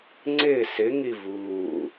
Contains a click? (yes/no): yes